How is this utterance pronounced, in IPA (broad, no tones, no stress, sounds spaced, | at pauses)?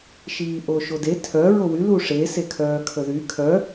ʃ iː ʔ o ʃ o d e tʰ œ ɹ o w y l u ʂ e s e kʰ œː kʰ ə ð y kʰ œ